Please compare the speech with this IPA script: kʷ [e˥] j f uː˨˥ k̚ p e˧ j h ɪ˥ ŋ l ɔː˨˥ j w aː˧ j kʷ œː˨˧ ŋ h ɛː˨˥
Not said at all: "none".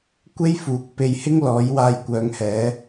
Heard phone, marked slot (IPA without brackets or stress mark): e˥